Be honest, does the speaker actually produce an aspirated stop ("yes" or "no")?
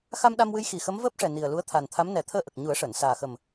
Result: yes